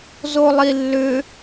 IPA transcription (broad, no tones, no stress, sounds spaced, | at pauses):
z o lˠ i lː ʏ